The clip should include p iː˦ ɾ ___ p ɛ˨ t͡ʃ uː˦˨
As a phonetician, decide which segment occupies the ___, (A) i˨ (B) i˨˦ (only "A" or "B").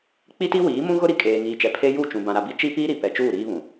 A